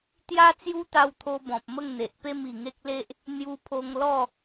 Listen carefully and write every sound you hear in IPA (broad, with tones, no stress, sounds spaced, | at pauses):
t̪ j a˦ t͡s j u˦ t̪ a˧ w t̪ʰ o˧ b ɔ̃˨ p̚ m ə˥˧ ŋ n̪ e˨ ʔ p e˥˧ m i˨˩ ŋ e˦ k̚ l e˦ ʔ | n̪ j u˧ pʰ o˧ ŋ l ɔ˥˧